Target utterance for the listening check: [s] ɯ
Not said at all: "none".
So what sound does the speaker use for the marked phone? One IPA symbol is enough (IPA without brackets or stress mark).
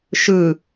ʃ